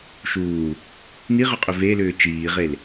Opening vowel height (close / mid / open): close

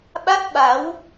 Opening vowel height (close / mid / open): open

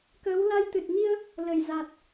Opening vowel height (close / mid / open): mid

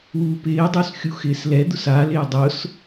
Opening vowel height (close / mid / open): close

